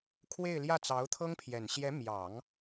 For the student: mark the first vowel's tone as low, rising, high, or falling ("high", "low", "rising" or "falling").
falling